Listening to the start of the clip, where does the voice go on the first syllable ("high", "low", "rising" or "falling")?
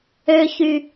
low